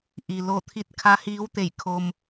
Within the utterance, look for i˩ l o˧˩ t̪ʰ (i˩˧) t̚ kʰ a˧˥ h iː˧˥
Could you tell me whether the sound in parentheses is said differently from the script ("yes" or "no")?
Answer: yes